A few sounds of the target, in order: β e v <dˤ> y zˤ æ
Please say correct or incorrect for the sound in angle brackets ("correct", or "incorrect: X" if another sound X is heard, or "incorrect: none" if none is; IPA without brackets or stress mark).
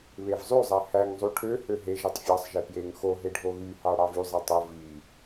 incorrect: zˤ